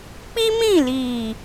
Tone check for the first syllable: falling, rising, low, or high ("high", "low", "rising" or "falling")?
high